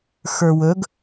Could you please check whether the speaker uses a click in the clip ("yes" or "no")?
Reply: no